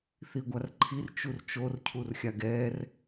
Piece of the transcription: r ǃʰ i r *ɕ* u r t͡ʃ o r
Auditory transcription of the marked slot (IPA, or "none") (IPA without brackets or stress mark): t͡ʃ